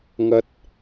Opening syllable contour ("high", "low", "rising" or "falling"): low